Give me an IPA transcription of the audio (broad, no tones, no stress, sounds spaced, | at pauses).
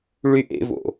ɭ y ʔ ḛ v o̰